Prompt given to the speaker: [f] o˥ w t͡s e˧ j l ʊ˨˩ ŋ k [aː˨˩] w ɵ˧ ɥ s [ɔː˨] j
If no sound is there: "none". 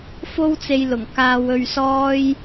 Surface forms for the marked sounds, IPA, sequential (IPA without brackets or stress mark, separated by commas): f, aː˧, ɔː˥